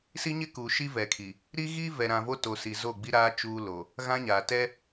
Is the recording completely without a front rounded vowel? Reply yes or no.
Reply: yes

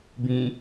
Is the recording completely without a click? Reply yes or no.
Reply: yes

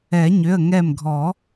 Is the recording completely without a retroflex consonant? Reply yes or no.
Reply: yes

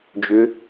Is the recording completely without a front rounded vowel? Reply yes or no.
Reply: no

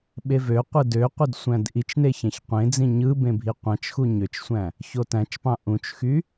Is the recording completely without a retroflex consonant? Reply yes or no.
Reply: yes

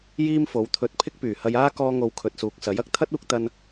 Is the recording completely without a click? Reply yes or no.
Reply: yes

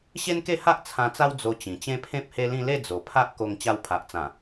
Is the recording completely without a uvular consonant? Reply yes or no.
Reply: yes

